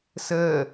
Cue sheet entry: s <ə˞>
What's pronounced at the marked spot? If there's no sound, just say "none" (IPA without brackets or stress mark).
ɜ